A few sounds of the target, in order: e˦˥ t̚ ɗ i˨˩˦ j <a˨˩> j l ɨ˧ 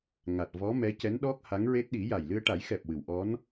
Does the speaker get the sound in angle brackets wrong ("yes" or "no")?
no